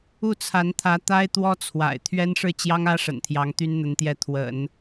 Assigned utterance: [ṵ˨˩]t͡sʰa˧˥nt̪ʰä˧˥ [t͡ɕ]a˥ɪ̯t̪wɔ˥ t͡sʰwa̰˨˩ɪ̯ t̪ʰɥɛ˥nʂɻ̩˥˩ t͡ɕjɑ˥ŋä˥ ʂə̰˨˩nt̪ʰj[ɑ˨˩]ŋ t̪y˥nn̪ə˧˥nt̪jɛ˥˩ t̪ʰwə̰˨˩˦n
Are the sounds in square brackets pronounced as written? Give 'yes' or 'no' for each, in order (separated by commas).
no, no, no